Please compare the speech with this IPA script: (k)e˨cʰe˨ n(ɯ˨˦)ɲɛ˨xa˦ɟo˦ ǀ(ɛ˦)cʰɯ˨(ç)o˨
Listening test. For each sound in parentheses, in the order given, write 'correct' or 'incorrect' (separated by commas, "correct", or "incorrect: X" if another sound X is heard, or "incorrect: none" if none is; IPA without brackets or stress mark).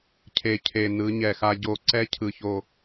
incorrect: cʰ, correct, correct, correct